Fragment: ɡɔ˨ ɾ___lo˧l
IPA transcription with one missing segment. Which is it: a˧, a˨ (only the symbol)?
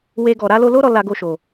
a˧